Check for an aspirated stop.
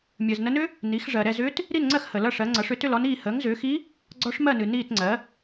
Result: absent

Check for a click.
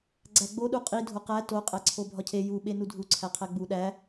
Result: present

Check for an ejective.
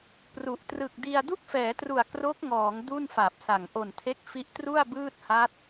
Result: absent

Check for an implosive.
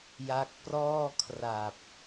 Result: absent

